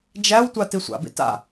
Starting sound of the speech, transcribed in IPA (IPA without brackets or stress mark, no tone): d͡ʒ